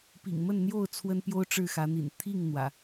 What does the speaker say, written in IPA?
p ḭ˨˩ ŋ m ə˥˨ n n̪ j o˥˨ ʊ̯ t͡sʰ w ə˦ n p j o˦ ʊ̯ ʈ͡ʂ ɻ̩˥˨ x ä˨˦ n̪ ḭ˨˩ n t̪ʰ i˥˨ ŋ n̪ w ä̰˨˩

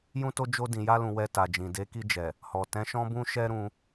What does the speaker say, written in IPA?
j ũ˦ t o˦ d͡ʒ o˧ d ĩ˨ j a˧ l ũ˨ w ɛ˧ t a˨ d͡ʒ ĩ˨ d e˨˦ k i˧ d͡ʒ ɛ˨ | h ɔ˨ t ɛ̃˨˦ ʃ ɔ̃˦ b ũ˦ ʃ ɛ˦ ɾ ũ˧

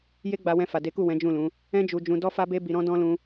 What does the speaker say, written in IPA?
j e˦ ɡ͡b a˧ w ɛ̃˧ f a˨ d e˨˦ k u˦˨ w ɛ̃˨˦ d͡ʒ ũ˦˨ l ũ˨˦ | ɛ̃˦ d͡ʒ u˧ d͡ʒ ũ˧ d ɔ˦ f a˦ b e˦ b i˧ ɾ ɔ̃˦ d ɔ̃˦ l ũ˦

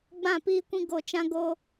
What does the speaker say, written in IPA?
ɡ͡b ã˦˨ p iː˦ kʷ ĩ˦ ɡ o˧ t͡ʃ ã˦ ɡ oː˦

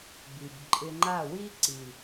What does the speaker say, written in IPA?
b i˨ b ǃʼ ɪ˧ ŋ͡ǃ a˦˨ w i˦ ǀ i˨

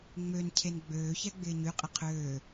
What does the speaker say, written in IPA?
ŋ͡m ø n cʰ e n ɡ͡b øː ç ɛ ɡ͡b ɪː ɲ y qʼ ɪ qʰ øː

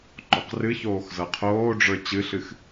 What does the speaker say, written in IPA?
ǃ ɔ q r ɨ ç oː x z ɤ qʰ oː ɖ͡ʐ ə˞ t͡ɕ ɨ ɬ ɨ x

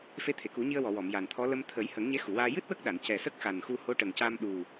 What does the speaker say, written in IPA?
f e˧˥ t̪ʰ e˨˩˨ k u˨˩˦ ɲ i˧ ə̯ w ɔ˨˩˨ w ɔ˨˩˨ m j a˨˩ n t̪ʰ ɔ˧˥ l ə˧ m t̪ʰ ə˨˩˦ j h ə˨˩˦ ŋ ɲ e˧˥ x u˨˩˨ w aː˧ j ɨ˦˥ t̚ w ə˦˥ k̚ ɗ a˨˩˨ n c ɛ˨˩ s ə˦˥ k̚ x a˨˩ n x u˧ h o˧˥ ʈ ə˨˩ ŋ c a˧ m ɗ u˨˩

